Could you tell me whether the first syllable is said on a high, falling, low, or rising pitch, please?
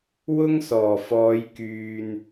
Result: high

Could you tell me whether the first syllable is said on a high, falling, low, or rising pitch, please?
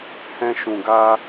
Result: high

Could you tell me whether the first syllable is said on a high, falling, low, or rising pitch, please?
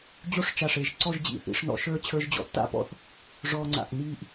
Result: high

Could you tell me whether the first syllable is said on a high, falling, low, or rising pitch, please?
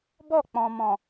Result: falling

